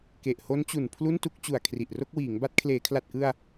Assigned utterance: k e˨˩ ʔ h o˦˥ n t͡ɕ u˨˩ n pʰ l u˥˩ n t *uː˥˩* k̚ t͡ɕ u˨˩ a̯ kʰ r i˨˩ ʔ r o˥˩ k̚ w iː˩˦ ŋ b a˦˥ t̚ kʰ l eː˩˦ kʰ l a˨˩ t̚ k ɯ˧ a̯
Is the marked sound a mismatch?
yes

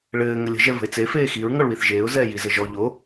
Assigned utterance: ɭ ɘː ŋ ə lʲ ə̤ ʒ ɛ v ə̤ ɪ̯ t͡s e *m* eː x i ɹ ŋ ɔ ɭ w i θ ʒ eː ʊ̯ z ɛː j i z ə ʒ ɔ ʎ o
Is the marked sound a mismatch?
yes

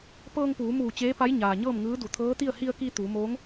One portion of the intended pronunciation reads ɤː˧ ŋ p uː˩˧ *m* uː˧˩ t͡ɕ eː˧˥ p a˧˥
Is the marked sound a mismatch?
no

